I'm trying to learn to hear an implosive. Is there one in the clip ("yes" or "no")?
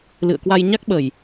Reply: yes